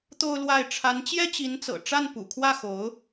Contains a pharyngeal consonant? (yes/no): no